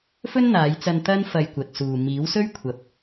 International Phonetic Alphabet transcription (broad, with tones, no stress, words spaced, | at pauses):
fɵ˥nn̪aː˨˧jt͡sɐ˧n t̪ɐ˥n fɐ˧jkʷɐ˨t̚suː˨ miː˨˥wsɵ˥ɥkʷʰɐ˨p̚